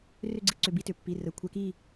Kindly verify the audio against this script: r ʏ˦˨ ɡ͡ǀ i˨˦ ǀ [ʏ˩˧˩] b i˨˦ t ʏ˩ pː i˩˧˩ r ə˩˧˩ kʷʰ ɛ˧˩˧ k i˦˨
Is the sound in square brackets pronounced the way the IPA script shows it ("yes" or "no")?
yes